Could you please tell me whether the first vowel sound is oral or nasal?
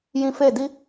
nasal